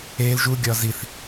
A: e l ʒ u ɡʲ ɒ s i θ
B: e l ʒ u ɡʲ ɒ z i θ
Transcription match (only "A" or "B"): B